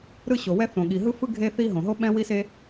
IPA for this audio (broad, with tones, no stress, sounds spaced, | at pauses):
ɾ ɯ˥ ɕ o˩ w ɛ˥ θ õ˩ ɠ i˩ ɦ ɯ˥ f ɯ˥ ɡʱ e˥ θ i˥ ɦ õ˩ ɦ o˥ ɓ ɛ̃˥ w i˥ s e˥